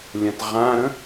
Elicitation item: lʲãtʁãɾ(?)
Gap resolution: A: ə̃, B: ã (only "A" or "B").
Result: A